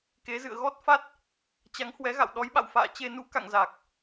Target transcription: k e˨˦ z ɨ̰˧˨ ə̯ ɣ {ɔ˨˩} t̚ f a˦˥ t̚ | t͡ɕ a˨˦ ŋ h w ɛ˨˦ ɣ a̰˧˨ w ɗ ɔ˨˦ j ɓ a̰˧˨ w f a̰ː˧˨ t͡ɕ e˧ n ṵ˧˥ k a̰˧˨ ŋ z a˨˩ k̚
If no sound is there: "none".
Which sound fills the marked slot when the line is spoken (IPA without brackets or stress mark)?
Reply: ɔ˦˥